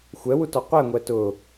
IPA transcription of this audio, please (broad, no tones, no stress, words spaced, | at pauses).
xʷɛwutɔ qʷɛŋʷɛ tʊ